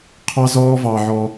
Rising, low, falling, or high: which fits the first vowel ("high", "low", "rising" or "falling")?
high